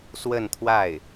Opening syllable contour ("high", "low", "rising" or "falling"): falling